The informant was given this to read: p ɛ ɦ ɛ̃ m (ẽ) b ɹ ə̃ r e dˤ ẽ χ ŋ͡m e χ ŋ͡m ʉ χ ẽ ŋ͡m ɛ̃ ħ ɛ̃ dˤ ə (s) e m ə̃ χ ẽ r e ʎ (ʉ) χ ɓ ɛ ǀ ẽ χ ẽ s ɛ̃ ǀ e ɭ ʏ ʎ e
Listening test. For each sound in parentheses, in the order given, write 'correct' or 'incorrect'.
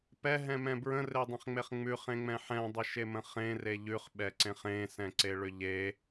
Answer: incorrect: ɛ̃, incorrect: ʃ, correct

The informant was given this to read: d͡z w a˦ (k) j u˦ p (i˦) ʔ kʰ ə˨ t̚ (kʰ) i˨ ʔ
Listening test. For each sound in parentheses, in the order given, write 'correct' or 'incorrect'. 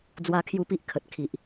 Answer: incorrect: kʰ, correct, correct

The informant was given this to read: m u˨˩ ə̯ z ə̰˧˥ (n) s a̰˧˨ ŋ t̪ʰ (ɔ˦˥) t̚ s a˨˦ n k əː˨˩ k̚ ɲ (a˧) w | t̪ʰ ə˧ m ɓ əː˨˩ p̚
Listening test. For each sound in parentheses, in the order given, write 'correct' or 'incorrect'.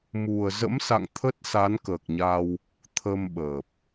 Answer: incorrect: m, incorrect: ə˦˥, correct

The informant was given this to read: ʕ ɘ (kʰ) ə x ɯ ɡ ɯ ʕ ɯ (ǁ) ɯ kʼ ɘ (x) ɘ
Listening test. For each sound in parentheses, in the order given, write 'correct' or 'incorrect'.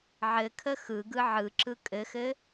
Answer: correct, correct, correct

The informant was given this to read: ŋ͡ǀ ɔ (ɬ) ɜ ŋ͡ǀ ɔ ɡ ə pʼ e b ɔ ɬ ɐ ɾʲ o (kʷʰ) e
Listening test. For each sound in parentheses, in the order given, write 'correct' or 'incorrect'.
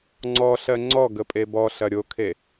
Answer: correct, incorrect: kʰ

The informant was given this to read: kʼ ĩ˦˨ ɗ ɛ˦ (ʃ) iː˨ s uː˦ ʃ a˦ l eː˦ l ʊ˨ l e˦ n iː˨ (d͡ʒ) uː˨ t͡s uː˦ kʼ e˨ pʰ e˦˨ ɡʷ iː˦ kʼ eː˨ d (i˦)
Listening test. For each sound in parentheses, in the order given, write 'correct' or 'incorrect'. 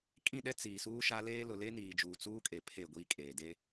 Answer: incorrect: t͡s, correct, incorrect: e˦

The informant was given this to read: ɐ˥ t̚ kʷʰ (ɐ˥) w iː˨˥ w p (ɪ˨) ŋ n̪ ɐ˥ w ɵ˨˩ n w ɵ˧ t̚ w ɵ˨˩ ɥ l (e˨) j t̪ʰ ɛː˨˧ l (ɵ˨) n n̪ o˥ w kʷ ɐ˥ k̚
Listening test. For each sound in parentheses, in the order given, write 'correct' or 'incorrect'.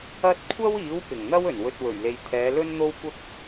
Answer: correct, incorrect: ɪ˨˩, correct, incorrect: ɵ˥

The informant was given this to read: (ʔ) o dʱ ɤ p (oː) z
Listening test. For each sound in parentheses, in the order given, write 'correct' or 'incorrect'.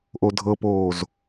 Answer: correct, correct

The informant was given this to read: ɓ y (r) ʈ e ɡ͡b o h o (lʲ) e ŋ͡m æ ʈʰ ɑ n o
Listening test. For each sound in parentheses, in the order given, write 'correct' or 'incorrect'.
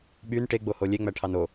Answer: incorrect: n, correct

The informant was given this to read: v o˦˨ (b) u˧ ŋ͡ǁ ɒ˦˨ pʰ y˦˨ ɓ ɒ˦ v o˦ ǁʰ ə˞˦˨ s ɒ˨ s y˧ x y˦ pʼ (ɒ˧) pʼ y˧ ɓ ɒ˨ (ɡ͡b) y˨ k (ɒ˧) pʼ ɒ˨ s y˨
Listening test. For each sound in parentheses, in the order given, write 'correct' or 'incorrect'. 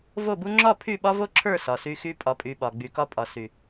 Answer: correct, correct, correct, correct

